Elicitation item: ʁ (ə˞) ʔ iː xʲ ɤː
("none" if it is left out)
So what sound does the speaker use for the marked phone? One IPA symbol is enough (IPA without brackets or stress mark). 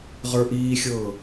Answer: ə˞